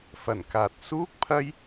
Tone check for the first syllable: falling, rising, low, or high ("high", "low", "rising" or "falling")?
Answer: low